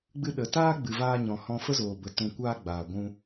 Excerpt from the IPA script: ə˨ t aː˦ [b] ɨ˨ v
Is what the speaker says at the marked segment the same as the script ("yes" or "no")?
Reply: no